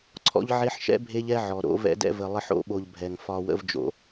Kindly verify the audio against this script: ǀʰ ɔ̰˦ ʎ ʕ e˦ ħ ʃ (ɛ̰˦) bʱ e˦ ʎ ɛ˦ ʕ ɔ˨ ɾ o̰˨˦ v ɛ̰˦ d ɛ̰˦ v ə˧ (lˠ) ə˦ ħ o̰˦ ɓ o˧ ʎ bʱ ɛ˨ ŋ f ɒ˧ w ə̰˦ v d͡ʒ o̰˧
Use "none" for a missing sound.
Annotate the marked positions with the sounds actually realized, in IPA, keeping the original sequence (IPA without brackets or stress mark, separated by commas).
ɛ̰˦, lˠ